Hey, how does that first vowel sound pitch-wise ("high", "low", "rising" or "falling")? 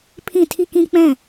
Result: falling